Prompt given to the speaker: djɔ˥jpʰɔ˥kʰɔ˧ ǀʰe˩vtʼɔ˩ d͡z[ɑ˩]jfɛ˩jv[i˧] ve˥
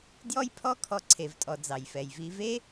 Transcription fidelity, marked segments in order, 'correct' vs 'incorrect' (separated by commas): correct, correct